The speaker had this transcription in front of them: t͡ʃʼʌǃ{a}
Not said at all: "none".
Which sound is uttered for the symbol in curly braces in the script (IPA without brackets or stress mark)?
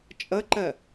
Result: ɐ